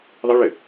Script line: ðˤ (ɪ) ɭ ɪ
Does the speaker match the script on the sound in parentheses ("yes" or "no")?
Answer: yes